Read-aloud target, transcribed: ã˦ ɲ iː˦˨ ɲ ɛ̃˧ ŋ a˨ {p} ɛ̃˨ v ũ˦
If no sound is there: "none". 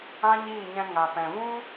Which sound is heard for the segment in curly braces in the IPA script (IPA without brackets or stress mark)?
p